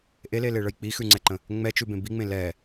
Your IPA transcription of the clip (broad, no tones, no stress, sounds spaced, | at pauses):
ʔ e l e l e ɭ ə j k͡p i x ʉ ŋ͡ǀ ɛ ǃ ə̃ | ŋ͡m ɛ t͡ʃ ʉ b ẽ b i ŋ͡m ẽ l ɛ